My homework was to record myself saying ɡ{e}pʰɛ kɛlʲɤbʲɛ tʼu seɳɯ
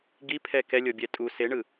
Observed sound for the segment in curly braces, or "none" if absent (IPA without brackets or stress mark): i